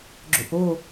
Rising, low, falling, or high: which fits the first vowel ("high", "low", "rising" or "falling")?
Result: low